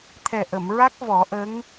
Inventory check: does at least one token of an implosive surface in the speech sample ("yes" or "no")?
no